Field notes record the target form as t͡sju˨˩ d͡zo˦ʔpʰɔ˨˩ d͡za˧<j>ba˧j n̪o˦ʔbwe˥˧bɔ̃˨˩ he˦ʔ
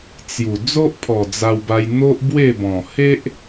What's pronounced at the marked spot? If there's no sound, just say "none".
w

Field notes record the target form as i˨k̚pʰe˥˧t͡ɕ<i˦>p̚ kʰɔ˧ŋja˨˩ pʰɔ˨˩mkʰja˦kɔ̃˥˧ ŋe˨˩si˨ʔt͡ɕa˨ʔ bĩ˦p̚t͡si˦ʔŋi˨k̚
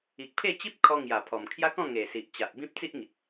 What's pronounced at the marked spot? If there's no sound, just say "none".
i˦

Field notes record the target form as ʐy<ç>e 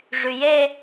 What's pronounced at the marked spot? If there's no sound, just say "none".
j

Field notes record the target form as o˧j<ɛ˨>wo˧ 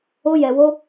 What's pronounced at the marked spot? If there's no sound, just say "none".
ɛ˨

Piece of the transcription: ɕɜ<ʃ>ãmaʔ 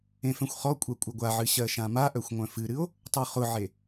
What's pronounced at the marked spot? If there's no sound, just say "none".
ʃ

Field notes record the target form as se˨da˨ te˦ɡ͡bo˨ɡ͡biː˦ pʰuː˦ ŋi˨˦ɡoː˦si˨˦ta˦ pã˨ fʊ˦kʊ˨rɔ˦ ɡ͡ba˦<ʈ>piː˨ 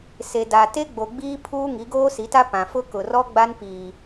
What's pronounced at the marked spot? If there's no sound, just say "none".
n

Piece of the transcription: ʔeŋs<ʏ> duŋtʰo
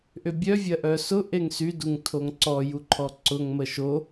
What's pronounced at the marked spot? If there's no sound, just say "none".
y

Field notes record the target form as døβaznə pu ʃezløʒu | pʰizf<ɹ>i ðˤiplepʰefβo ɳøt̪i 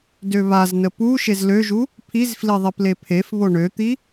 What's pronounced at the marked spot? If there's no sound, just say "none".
l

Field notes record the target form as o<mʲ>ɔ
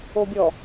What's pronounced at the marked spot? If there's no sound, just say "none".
bʲ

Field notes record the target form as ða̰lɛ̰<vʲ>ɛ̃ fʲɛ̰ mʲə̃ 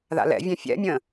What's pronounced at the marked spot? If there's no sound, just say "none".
vʲ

